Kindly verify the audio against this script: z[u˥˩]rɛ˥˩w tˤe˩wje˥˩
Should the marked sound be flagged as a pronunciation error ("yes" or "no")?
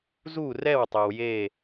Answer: no